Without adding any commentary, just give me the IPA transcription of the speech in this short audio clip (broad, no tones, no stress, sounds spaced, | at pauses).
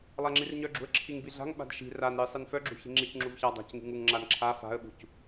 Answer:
lˠ a ŋ͡ǁ i r ɲ œ ɡ͡ǁ ṳ ə̯ ǁʰ i ŋ b i ɮ a̤ ŋ ɓ a̤ d ʃ i̤ r a n ɾ i sˤ i n f œ ɡ͡ǁ ṳ ç i̤ ŋ͡ǁ i c ŋ͡ǁ u v ç a dˤ a̤ c ŋ i̤ ŋ u ŋ ŋ͡ǁ a n ǁʰ a f a̤ ə̯ ɓ ṳ c